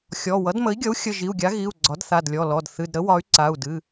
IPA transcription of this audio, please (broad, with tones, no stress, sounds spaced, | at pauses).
xʲ ɔ˩˧˩ w ʌ˩˥ d m ə˩˥ i̯ ɡʲ ʌ˩˥ u̯ xʲ ə˩˧˩ ʒ i˩˧˩ u̯ ɡʲ a˩˥ ɣ i˩˧˩ u̯ ɡ͡ǀ ɒ˩˥ d θ a˩˧˩ d lʲ ɔ˩˧˩ l ɔ˩˧˩ d θ ɨ˩˧˩ d ɾ ə˩˥ w ɒ˩˥ y̯ ǀ a˩˧˩ u̯ d ɨ˩˧˩